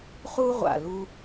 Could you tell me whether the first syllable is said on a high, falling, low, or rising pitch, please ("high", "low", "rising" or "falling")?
high